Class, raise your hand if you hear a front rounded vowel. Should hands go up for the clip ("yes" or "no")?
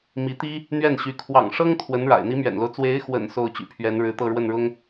yes